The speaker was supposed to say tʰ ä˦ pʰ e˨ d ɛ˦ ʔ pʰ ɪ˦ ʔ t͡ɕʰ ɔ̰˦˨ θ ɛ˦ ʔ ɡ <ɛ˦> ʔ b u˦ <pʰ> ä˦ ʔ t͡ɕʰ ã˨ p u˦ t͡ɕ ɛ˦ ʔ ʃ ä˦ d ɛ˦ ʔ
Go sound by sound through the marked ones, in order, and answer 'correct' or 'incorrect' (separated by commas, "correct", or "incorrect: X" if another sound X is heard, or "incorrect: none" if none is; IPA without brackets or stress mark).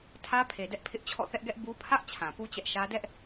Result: correct, correct